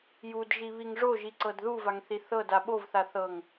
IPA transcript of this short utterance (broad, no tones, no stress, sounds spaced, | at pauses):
j u d ʒ i β i ŋ ʐ o ʒ i ǀ ɤ d ð u v a ŋ θ i θ ɤ d a ɓ o v θ a θ ɤ ŋ